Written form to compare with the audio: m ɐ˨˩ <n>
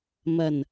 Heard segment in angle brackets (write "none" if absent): n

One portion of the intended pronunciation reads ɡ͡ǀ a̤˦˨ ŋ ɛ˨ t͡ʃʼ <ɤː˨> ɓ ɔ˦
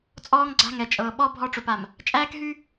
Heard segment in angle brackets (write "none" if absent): ɤː˨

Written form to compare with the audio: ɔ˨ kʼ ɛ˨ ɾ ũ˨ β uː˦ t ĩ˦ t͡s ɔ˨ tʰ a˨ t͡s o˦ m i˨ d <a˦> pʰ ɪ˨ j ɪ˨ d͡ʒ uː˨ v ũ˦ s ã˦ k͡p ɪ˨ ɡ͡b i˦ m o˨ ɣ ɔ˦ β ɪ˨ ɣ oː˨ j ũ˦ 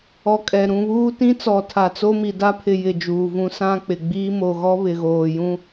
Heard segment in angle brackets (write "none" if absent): a˦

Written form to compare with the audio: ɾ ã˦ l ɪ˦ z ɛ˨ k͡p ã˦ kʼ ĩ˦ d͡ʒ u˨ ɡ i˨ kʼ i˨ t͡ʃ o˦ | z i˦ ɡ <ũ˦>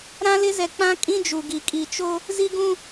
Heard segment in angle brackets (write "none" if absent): ũ˦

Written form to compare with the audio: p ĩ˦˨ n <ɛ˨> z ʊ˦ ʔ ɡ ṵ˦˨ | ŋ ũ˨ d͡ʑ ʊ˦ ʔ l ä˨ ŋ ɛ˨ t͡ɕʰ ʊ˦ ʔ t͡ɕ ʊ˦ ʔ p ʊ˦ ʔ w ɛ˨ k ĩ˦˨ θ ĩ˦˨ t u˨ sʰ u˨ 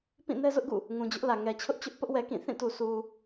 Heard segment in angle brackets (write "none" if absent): ɛ˦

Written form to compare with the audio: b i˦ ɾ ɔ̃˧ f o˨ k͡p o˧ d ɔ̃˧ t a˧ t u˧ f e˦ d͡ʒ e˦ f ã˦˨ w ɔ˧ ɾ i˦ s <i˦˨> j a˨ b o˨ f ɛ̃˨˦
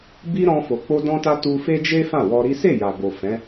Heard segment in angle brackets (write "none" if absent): e˦˨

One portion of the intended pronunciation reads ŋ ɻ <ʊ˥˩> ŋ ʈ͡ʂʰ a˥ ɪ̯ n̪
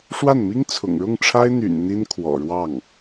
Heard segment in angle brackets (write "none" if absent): ʊ˥˩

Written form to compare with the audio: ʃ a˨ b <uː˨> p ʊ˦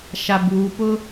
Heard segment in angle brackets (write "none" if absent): uː˨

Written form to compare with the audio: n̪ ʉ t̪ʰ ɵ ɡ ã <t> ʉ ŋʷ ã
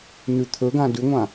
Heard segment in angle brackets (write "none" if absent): d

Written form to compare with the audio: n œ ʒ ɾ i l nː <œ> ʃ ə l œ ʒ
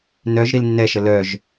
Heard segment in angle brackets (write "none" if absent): ɛ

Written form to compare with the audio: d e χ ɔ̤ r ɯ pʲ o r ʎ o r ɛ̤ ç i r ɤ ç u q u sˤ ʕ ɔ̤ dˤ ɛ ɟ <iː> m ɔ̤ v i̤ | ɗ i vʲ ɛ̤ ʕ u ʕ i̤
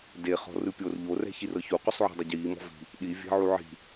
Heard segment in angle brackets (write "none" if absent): iː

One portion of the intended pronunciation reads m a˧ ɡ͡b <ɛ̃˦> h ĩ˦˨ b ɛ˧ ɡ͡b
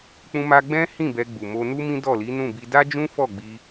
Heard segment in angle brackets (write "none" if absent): ɛ̃˦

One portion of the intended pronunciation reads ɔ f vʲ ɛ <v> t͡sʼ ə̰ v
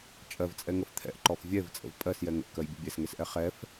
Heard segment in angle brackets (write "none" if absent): v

